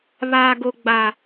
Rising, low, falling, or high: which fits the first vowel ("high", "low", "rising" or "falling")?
high